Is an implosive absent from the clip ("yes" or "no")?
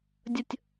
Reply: yes